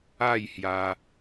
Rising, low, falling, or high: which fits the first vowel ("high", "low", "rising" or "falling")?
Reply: falling